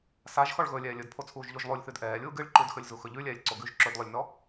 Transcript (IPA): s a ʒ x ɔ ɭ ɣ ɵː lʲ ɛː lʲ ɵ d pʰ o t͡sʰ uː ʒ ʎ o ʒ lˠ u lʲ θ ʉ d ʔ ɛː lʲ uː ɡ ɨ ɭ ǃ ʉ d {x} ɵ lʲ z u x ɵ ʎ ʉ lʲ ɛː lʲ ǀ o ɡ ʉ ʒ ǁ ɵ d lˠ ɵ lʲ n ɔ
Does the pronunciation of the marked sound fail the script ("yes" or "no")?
no